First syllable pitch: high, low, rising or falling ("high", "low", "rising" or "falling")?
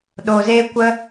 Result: low